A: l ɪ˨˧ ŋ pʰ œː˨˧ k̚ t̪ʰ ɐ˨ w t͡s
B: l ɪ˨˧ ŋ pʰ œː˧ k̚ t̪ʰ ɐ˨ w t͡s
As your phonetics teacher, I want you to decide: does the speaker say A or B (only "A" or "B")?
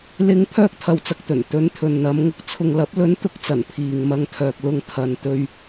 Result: B